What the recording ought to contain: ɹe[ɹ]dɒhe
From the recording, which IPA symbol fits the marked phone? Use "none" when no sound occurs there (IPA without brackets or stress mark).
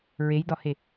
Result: j